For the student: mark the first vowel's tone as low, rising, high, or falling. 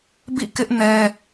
falling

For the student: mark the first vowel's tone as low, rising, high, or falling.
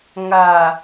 low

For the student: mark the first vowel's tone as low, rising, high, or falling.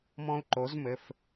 high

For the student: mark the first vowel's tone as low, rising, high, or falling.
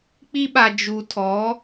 high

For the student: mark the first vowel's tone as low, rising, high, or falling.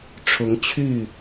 rising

